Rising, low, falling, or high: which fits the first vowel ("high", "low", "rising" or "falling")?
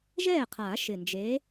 falling